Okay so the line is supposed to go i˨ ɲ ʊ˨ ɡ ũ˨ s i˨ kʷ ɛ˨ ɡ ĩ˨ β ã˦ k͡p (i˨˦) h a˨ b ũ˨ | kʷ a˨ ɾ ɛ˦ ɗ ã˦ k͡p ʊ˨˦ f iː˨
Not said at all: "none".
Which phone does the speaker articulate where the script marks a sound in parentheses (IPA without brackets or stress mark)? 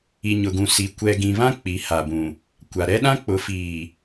i˨˦